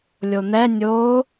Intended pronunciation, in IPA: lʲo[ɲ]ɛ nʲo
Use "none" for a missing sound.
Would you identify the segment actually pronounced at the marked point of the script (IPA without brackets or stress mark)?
n̪